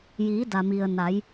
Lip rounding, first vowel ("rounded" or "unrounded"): unrounded